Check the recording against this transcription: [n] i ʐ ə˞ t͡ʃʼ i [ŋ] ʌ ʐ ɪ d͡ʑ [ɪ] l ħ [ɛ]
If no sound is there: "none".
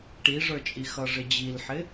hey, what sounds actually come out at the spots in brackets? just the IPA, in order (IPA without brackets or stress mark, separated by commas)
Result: ʈ, x, i, ɪ